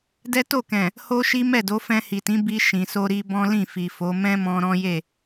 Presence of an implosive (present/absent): absent